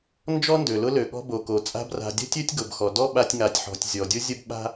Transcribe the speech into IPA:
n d͡ʒ ɔ˥ n d ø˩ l ʊ˦ l ø˩ ɠ ɔ̤˦ b o˩ k o˩ t͡sʼ a̤˦ b r a̤˨ dʲ ə̤˥ tʲ ø˥ tʲ ɡ ʊ˩ b x ɔ˩ d ɔ˥ ɓ a˦ tʲ ŋ a˨ tʲ ħ ɔ̤˨ tʲ zʲ ɔ˩ dʲ ʊ˥ zʲ ə˥ b ɓ a̤˥

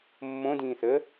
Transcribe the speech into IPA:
mː õ d ĩː θ ə

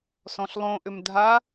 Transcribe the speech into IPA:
s ɔ̃ ɬ lˠ õ ʔ ʏ m dʱ a

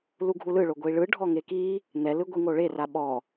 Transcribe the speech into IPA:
l u ɡʱ u l ɯ ɭ o ɡʷ i ɭ ɯ ɖʱ ɔ ŋ e k i | n̪ ɛ l ɯ ɡʷ i ŋ o ɭ e r a ɓ ɔ

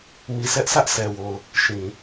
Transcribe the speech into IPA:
m i˦˨ s ɛ˦ ʔ s ä˦ ʔ sʰ ɛ˨ w o˨ ʊ̯ | ʃ ĩ˨

